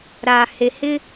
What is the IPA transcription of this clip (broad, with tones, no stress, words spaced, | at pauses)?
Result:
ɾaː˨he˨ hɪ˦